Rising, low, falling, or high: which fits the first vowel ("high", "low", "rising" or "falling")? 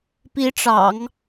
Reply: rising